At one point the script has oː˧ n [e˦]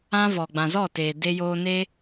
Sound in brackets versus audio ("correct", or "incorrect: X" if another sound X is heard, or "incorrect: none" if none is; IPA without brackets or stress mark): correct